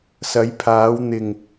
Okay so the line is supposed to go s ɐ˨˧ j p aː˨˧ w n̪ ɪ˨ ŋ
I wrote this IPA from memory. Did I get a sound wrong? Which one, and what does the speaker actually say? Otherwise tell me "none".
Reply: p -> pʰ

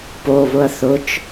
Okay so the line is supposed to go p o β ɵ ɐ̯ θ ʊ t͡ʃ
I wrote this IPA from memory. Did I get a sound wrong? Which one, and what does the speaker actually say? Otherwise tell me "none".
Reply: ɵ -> ʊ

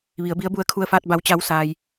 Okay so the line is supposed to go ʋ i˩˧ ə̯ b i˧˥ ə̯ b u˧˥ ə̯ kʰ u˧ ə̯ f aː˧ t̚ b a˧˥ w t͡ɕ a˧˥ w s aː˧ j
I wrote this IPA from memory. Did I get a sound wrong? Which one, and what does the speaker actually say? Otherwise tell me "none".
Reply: none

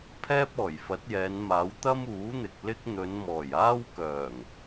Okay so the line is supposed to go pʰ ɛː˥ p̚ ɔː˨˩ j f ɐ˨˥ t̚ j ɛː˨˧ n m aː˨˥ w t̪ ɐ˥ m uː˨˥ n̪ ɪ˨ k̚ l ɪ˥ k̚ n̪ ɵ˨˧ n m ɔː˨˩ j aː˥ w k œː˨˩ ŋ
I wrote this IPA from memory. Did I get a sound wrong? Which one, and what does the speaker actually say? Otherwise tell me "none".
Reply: none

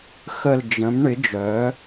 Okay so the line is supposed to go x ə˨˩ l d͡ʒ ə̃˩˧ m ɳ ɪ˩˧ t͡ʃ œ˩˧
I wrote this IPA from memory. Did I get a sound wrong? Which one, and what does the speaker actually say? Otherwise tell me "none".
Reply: t͡ʃ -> d͡ʒ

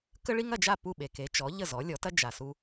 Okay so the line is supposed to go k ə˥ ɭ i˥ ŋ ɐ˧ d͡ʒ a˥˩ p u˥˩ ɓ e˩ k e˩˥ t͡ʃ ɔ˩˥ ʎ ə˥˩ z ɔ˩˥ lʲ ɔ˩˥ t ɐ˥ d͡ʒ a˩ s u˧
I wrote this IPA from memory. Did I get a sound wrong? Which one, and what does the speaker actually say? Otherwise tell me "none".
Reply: none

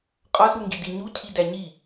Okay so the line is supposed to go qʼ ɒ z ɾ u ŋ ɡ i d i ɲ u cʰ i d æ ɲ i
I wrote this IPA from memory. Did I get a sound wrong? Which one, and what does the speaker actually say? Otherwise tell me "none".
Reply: none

